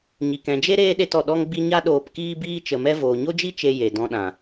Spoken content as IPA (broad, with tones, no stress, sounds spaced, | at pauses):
ɲ i˨ k ɛ̃˨ d͡ʒ e˦ ɾ eː˦ ɗ e˧ t ɔ˨ ɗ ɔ˦ ŋ ɡ͡b i˦ ɲ a˦ ɗ oː˧ p k iː˦ b iː˦ t͡ʃ ə˧ m ɛ˦ v oː˨ ɲ o˦ d͡ʒ i˦ t͡ʃ e˧ j e˨ d ɔ̃˧ ɗ ã˨